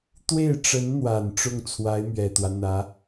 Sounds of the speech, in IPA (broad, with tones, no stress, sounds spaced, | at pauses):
t̪ w e˥˩ ɪ̯ ʈ͡ʂ ə˧˥ n n̪ w a˨˩ n ʈ͡ʂ ʊ˥˩ ŋ t͡sʰ w a˧˥ ɪ̯ m ɥ ɛ˨˩ t̪ w ä˦ n̪ ä˧˥